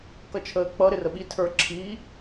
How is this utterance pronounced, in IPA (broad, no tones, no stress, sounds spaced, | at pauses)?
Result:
k ʌ t͡ʃʰ əː k͡p ʌ ɾ ɪ r ə ɓ i tʰ ə˞ ǁʰ i